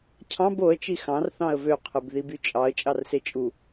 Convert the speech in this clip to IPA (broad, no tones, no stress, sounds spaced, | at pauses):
cʰ ɑ̃ b o ə̯ t͡ʃ i x ɑ̃ r θ ɑ̃ ə̯ v ø qʰ ɯ b ð i b y t͡ʃʼ ɑ ə̯ t͡ʃʼ ɑ r s e t͡ʃʼ u